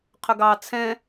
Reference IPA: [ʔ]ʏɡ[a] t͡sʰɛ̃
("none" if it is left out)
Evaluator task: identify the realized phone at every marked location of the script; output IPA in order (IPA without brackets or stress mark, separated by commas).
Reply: qʰ, ɑ